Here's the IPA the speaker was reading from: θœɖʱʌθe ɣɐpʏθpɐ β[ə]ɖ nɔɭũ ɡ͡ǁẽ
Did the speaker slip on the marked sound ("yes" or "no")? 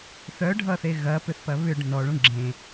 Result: yes